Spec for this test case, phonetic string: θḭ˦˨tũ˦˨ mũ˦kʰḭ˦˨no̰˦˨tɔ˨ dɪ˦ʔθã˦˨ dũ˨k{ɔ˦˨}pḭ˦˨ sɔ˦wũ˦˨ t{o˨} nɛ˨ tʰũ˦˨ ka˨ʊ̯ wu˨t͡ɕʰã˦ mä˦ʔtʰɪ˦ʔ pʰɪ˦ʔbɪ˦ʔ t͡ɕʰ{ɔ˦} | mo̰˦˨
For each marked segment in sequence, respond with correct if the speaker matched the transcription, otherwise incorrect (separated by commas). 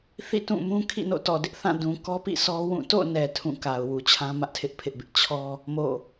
incorrect, incorrect, correct